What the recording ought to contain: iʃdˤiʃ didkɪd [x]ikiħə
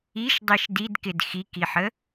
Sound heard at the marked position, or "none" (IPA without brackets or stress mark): x